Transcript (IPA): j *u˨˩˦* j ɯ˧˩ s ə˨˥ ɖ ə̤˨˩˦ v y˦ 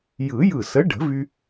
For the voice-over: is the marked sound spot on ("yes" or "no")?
no